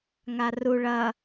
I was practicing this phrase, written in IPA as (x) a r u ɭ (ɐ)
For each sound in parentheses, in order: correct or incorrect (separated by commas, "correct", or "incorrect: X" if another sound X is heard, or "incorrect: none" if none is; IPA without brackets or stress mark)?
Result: incorrect: ŋ, correct